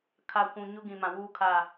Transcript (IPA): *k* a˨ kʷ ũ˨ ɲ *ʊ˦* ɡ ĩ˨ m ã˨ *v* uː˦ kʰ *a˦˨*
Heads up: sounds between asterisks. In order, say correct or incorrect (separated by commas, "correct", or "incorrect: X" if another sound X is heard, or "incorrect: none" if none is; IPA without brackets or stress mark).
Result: incorrect: kʰ, correct, incorrect: w, correct